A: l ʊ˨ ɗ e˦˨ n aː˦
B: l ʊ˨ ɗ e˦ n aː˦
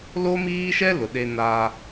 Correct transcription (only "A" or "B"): B